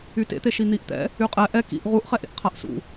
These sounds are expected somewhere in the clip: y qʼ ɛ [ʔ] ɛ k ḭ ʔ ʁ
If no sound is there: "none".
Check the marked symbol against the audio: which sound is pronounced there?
ʔ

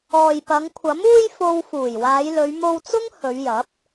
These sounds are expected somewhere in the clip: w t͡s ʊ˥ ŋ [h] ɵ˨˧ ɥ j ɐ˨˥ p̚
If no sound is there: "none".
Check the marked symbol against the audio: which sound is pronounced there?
h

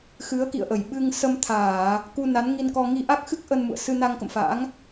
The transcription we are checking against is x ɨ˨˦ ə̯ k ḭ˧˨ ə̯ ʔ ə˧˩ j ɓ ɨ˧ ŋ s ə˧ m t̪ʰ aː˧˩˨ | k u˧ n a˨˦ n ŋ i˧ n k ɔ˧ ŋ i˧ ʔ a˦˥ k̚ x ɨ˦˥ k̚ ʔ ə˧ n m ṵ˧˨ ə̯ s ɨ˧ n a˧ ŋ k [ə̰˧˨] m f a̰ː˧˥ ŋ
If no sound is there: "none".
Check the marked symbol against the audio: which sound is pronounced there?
ə̰˧˨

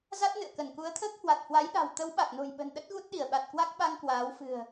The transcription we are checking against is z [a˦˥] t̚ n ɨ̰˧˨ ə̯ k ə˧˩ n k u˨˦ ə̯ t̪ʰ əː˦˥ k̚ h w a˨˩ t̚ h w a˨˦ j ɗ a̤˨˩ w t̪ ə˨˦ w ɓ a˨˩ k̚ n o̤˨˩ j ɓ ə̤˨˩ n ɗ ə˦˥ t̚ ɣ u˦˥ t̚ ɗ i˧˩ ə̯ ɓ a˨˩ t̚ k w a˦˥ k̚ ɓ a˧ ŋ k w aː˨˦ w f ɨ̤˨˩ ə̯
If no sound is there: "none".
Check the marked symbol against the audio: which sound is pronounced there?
a˦˥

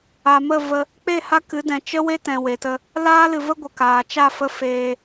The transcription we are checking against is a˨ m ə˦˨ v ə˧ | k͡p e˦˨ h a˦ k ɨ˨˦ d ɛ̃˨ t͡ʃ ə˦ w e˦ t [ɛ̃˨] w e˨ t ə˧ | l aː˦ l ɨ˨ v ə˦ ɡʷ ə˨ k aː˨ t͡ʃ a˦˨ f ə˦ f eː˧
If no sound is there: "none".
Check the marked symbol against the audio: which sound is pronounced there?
ɛ̃˨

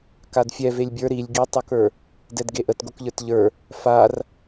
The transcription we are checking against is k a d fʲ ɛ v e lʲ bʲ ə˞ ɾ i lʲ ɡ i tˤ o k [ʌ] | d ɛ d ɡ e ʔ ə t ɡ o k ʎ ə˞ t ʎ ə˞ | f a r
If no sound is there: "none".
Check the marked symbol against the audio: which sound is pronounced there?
ə˞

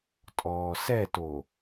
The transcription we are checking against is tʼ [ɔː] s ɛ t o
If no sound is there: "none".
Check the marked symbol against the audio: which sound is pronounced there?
ɔː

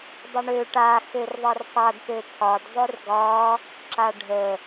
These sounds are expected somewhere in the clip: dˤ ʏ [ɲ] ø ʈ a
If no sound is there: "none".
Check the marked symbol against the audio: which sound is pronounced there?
ɳ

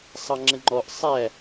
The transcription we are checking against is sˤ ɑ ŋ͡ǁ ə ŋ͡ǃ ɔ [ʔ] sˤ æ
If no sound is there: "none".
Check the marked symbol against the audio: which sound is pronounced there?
ʔ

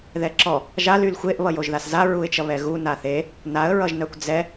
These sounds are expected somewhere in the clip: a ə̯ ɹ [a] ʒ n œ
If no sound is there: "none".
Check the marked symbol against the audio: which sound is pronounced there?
ʌ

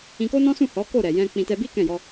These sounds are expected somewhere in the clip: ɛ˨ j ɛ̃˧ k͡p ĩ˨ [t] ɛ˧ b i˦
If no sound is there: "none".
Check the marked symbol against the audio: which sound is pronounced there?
t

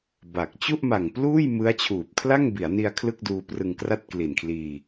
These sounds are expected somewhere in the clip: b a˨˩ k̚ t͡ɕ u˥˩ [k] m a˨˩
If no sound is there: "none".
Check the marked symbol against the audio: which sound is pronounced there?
ʔ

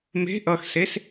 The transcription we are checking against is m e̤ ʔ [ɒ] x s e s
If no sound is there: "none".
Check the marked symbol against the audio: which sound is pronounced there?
ʌ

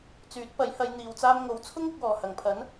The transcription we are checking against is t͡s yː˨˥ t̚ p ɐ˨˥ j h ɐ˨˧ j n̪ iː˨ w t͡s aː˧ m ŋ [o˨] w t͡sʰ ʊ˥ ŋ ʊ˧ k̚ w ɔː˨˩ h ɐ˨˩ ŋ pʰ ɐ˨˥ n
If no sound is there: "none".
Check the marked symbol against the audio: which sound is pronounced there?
o˨˥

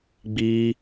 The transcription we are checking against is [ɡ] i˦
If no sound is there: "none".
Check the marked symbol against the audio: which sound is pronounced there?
ɡ͡b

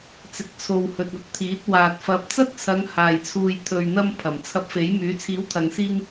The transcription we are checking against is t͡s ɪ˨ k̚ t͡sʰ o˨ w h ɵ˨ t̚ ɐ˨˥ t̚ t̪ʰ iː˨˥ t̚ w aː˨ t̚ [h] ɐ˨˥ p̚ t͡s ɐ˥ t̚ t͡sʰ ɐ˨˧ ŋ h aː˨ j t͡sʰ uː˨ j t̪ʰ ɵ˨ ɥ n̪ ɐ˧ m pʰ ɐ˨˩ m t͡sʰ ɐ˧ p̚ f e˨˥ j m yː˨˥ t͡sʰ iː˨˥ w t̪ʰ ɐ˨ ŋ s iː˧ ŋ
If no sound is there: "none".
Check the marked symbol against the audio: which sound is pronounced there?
f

